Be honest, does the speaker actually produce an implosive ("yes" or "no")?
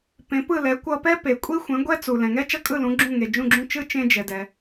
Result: no